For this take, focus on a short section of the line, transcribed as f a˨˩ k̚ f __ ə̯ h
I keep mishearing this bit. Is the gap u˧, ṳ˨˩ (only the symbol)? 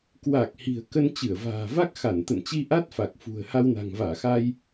ṳ˨˩